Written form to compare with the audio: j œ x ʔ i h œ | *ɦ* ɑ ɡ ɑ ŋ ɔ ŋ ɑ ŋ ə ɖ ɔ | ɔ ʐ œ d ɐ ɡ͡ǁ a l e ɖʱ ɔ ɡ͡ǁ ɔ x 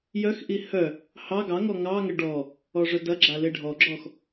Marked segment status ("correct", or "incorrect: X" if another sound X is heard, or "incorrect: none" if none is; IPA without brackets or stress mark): incorrect: h